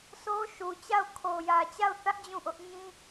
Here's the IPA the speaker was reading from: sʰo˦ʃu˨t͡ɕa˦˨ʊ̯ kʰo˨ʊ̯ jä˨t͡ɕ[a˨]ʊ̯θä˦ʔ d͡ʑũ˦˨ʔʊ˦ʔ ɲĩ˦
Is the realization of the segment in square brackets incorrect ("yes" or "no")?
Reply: yes